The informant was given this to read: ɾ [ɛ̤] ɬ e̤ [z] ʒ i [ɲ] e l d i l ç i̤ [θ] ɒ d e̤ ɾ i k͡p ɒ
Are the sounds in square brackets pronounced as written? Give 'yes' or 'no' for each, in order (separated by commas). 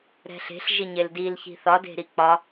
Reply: yes, no, yes, yes